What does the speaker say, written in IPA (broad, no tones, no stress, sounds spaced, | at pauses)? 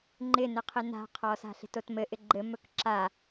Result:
ŋ͡ǃ ɪ n ɘ qʰ ɪ n a̤ qʰ ɔ s a̤ ɬ e̤ t o t m ɘ ʔ ɪ ɡ͡ǃ ɘ m ɵ k ǁ a